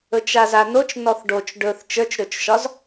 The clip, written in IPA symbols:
ɵ t͡ʃ a z a n o t͡ʃ n ɔ θ ɖ o t͡ʃ ɖ ɵ θ t͡ʃ ə˞ t͡ʃ ɾ ɵ t͡ʃ ʃ ɒ z

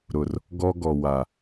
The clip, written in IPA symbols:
ɾ ʊ˨ r | ɡ ɔ˦ ɡ ɔ˨ w a˨

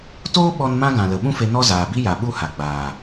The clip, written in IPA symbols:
t oː˦ ɓ ɔ˦ n m ã˦ ɡ ã˨ l ə˨ ɓ ũ˦ f e˧ n ɔ˦ z aː˨ b i˦ j a˨ ɓ u˦ h a˨ ɡ͡b aː˨

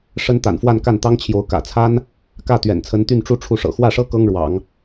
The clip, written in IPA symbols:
ʂ ə˥ n t̪ a̰˨˩ n f w a˥˧ n k a˥˩ n t̪ ɑ˥ ŋ t͡ɕʰ j o˧˥ ʊ̯ k ä̰˨˩ t͡sʰ a˥ n | k ä˥˩ t̪ ɥ ɛ̰˨˩ n t͡sʰ ə˧˥ n t̪ y˥˧ n ʈ͡ʂ u˥˧ ʈ͡ʂʰ u˥˩ ʂ ɤ̰˨˩ x w ä˥˩ ʂ ɤ˥ k ɤ˥ ŋ ɻ w ɑ̰˨˩˦ ŋ

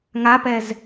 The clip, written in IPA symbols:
ŋ a p ɛ z

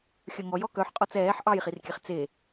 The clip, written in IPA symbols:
xʲ œ ŋ ɔ j ɔ k œ ħ qʼ ɔ t͡s ɛː ħ ʔ ɑ j χ i r kʲ ɛ χ t͡s e

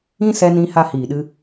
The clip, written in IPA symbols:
ĩ˦ s ɛ˧ n ĩ˧ h a˧ h iː˨ ɗ ɨ˧

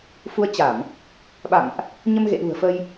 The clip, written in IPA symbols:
f u˨˦ ə̯ t͡ɕ a˧˩˨ m | ɓ a̰˧˨ m ʔ | ɲ ə˧ m ɣ ḛ˧˨ ɗ ṳ˨˩ ə̯ f ə˧ j

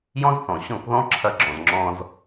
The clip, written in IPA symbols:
j ɔ̃˦ z θ ɔ̃˨ ɕ ɔ̃˦˨ k ð ɔ̃˦ ǁʰ ɐ˧ ɡ͡ǁ ɔ̃˨ z ŋ͡ǁ ɔ̃˧ z

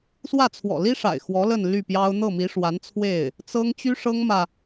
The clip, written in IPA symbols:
s w ä˥˩ t͡sʰ w ɔ̰˨˩ l i˥ ʂ a̰˨˩ ɪ̯ x w ɔ˧˥ l ə˥˧ n l y˥˩ p j ɑ˥ ʊ̯ n̪ ɤ˥˩ m i˧˥ ʂ w a˧˥ n t͡sʰ w e˥˩ ɪ̯ | t͡s ɤ˥ ŋ t͡ɕ y˥ ʂ ɤ˥ ŋ m ä˨

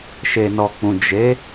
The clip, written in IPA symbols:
ʃ e˨ n ɔ˨ k͡p ũ˨ d͡ʒ e˨˦

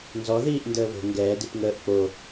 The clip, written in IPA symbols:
n z ɔ ð iː ʔ n d əː β o̤ ŋ ɡ ɛː d i p ŋ əː ʔ k͡p o

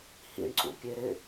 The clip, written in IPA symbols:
h ḭ ɳ ǀ ṵ pʲ e ɾ ɪ

